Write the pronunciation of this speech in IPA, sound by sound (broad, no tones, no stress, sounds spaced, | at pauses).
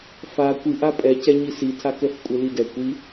f a kʷ i ʔ a pʼ ɛ c ɛ ɲ i s i tʰ a k ɛ f kʷʼ e l i d ɛ kʷ i